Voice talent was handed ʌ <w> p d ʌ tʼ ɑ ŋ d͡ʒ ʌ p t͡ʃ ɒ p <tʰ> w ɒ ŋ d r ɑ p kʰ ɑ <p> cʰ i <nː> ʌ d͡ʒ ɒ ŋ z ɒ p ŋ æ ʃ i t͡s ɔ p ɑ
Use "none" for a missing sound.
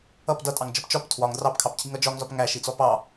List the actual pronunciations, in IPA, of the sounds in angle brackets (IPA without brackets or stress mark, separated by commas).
none, tʰ, p, ŋ